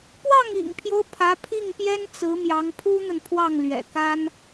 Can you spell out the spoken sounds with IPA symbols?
p w ɑ˥˩ ŋ ḭ˨˩ ŋ pʰ j o˦ ʊ̯ pʰ ä˧˥ pʰ i˥˩ ŋ p j ɛ˥ n t͡s ɹ̩˧˥ m j ɑ˧˥ ŋ pʰ u˥ n̪ ə˨ n pʰ w ɑ˥˩ ŋ l ɥ ɛ̰˨˩ k a˥ n

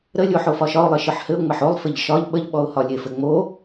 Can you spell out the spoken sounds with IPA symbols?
ɾ ə lʲ o ħ o f ɒ ʃ ɒ ʊ̯ lˠ ɘ ʃ ɯ ħ h ɘ ʊ̯ ŋ͡m ɘ ħ o lˠ f ɘ ʎ ʃ ɒ ʎ ɓ ə ʎ ɓ ɔ ʊ̯ h ɒ lʲ e f ɘ ŋ͡m o

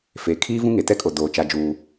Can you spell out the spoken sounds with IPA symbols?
f eː˨ kʰ iː˦ v ũ˦ ŋ e˨ t ɛ˦ kʼ o˨ d oː˨ t͡ʃ a˦ d͡ʒ uː˦

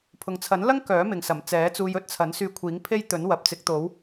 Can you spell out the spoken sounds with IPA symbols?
pʰ ʊ˨ ŋ t͡sʰ ɐ˨˥ n l ɐ˥ ŋ k œː˨˥ m ɪ˨˧ ŋ s ɐ˨˩ m t͡s ɛː˨˥ t͡s uː˧ j ɵ˧ t̚ t͡sʰ ɐ˨˥ n s yː˧ kʷʰ iː˨˥ ŋ pʰ e˥ j t̪ ɵ˨˥ n w ɐ˨ p̚ t͡s ɪ˨˥ k̚ t̪ o˨˥ w

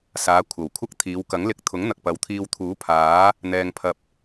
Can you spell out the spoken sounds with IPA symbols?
s aː˨˧ kʷʰ ɐ˨˩ w kʷʰ ɐ˥ k̚ t̪ʰ iː˨˧ w k ɐ˨˥ ŋ l ɪ˧ k̚ t̪ʰ ʊ˨˥ ŋ n̪ ɐ˨ k̚ p ɐ˨˧ w t̪ʰ iː˧ w t̪ʰ uː˨˥ pʰ aː˨˥ | n̪ ɛː˧ ŋ pʰ ɐ˧ p̚

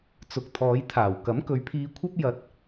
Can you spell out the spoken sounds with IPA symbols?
t͡s ʊ˨ k̚ t̪ʰ ɔː˨˧ j t̪ʰ aː˨˩ w k ɐ˨˥ m k ɵ˨ ɥ pʰ iː˧ kʷʰ ɐ˥ p̚ j ɐ˧ t̚

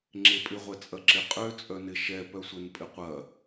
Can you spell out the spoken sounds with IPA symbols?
ŋ͡ǁ e pʼ ɪ ʁʷ ɛ t͡sʼ ɐ ǁ ɪ qʼ ø t͡sʼ œ n ɪ ʃ ɛ p œ sʷ ɛ n pʼ ɪ qʷ ɐ

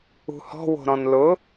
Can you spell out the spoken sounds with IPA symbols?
ṳ h ɔ̤ w o̤ ɾ ɔ̃ n l ʊ

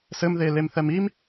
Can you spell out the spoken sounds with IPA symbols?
s ɘ m ð e l e m θ ɛ m i m

